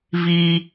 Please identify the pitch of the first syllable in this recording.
high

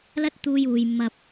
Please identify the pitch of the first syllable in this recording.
high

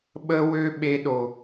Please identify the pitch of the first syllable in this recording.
high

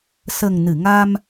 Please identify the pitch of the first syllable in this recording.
low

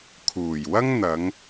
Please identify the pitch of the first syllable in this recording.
low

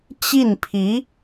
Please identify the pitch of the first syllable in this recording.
falling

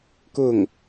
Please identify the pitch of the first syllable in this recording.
falling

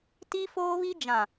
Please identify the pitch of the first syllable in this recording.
high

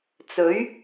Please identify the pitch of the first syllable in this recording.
rising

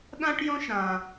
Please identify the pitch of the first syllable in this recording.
high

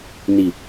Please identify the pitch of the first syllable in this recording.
low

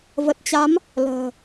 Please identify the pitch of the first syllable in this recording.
low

